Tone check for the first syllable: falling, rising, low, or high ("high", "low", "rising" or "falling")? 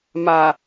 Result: low